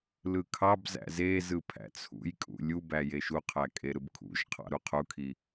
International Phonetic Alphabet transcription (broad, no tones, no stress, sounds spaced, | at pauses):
l ɯ kʰ ɑ b z æ̰ z e z ɯ pʰ æ̰ t͡sʰ ṵ j kʼ ṵ lʲ u b æ j e ʃ u qʰ æ kʼ e ɾ ɯ b kʰ ṵ ʒ qʰ ɑ̰ ɾ u qʰ u kʰ i